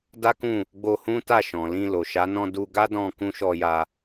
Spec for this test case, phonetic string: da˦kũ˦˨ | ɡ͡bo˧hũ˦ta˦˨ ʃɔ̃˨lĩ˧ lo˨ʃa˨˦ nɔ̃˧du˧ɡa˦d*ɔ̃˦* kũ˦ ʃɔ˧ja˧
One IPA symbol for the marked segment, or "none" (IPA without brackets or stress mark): ɔ̃˧